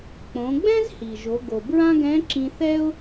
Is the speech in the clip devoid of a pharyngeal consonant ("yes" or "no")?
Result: yes